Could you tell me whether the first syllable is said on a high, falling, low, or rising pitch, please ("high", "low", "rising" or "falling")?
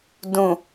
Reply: low